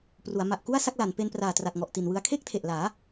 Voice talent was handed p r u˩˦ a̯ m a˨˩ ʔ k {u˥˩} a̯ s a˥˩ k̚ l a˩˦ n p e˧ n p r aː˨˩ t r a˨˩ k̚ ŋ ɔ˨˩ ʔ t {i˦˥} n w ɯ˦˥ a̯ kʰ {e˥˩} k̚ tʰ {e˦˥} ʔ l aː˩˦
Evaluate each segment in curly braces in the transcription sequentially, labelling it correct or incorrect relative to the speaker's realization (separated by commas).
correct, incorrect, correct, incorrect